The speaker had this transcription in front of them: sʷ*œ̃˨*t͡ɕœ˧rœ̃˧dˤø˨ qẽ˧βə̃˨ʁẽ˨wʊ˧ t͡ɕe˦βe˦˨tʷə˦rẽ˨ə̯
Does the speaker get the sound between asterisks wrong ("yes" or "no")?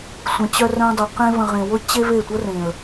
yes